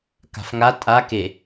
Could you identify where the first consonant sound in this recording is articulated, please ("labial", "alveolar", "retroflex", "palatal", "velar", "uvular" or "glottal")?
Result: velar